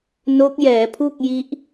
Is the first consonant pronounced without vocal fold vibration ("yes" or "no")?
no